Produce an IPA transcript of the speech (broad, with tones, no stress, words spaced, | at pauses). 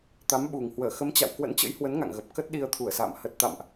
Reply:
t̪a˨˦mɓu˨˩ŋ hwəː˧˩xə˨˦mt͡ɕa̰˧˨w kwə̰˧˥nt͡ɕə̰˧˥jhwə˨˦n ŋa̰˧˨ŋɣə˨˩p̚ kə˦˥t̚ɗi˧ə̯t̪ʰu˧˩ə̯sa̰ː˧˨m hə˨˩t̚t̪a̰˧˨mʔ